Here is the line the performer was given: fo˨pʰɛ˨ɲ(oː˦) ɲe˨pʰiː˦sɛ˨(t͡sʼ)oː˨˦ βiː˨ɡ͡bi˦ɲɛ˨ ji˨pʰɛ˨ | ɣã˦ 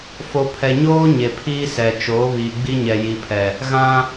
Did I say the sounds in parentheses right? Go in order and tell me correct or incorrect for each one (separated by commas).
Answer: correct, incorrect